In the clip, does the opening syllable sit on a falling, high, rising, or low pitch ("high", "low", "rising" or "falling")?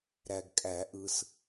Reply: low